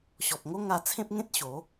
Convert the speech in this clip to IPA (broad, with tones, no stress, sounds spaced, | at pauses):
ɕ ɔ˨ p̚ ŋ o˦ ŋ a˧ t͡sʰ ẽ˦ p̚ ŋ ẽ˦ t̚ ɕ o˨˦